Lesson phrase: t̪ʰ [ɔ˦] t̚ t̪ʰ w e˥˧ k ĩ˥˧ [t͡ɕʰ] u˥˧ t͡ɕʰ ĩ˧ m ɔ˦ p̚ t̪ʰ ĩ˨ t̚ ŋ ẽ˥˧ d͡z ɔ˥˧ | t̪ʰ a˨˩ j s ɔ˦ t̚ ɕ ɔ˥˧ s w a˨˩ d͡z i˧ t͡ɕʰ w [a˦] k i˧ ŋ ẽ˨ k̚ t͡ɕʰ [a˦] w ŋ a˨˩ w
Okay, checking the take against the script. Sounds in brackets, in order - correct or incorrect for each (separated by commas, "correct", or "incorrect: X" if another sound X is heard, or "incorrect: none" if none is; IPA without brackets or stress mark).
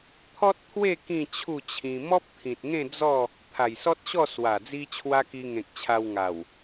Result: correct, correct, incorrect: a˧, incorrect: a˧